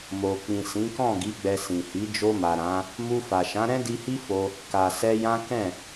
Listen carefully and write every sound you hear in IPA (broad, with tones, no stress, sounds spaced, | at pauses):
m o˨ k͡p ĩ˨ s ĩ˨˦ k ɔ̃˦˨ ɡ i˨˦ ɡ͡b ɛ˧ s ĩ˨ h i˨˦ d͡ʒ o˧ m a˨ ɾ ã˨˦ | m u˧ f a˨ ʃ ã˨˦ ɾ ɛ̃˦ d i˧ h i˦ f o˧ | k a˨ s ɛ˧ j ã˦ k ɛ̃˦˨